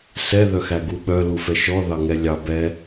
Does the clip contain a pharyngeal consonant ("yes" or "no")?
no